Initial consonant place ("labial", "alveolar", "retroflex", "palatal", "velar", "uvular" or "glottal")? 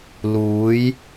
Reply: alveolar